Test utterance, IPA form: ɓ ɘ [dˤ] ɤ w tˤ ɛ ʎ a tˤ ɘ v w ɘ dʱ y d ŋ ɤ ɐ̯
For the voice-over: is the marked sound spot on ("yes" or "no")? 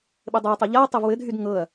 yes